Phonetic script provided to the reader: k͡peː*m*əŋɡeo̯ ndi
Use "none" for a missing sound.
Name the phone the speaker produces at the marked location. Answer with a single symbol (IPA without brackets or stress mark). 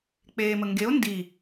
m